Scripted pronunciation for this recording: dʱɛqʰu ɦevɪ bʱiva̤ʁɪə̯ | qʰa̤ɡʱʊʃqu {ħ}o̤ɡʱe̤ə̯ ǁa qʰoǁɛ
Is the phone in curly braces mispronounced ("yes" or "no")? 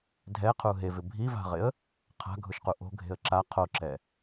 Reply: yes